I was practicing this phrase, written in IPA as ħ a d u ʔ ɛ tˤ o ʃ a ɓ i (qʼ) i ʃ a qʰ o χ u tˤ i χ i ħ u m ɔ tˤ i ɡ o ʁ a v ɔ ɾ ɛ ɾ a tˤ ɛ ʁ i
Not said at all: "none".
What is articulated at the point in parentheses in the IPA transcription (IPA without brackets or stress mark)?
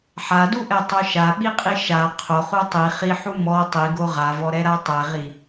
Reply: qʼ